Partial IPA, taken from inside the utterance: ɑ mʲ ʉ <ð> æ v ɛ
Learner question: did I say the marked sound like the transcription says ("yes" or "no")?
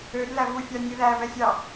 yes